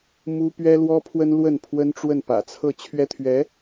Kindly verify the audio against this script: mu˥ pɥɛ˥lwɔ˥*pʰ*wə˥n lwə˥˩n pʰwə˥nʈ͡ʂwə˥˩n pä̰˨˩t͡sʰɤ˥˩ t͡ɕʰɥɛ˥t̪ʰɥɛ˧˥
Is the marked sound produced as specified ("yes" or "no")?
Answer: yes